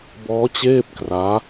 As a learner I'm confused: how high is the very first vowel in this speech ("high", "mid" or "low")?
mid